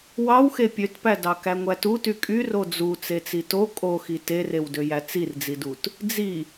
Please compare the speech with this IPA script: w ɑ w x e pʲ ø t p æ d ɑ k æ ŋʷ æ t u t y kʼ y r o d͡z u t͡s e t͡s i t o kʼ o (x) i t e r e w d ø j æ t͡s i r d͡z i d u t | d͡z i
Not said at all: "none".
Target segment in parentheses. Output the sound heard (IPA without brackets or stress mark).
x